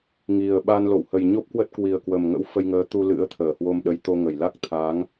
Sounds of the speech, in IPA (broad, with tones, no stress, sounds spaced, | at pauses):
ŋ i˨˩ ə̯ ɓ a˧ n l o̰˧˨ w h ə˨˩ j ɲ o˦˥ p̚ k w ə˦˥ t̚ k w i˨˩ ə̯ k w ə˨˩ m ŋ ə̰˧˥ w f ə˧ j ŋ əː˨˦ t̪ u˧ l ɨ̰˧˥ ə̯ t̪ʰ əː˧˩ h w o˧ m ɗ ə˨˦ j t̪ o˧ ŋ ə˧˩ j l a˦˥ k̚ t̪ʰ a˨˦ ŋ